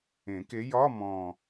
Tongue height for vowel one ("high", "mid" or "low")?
mid